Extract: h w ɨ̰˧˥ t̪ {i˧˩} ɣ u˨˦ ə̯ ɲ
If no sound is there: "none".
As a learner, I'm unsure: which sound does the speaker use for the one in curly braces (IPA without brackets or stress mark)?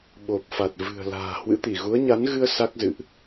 i˧˩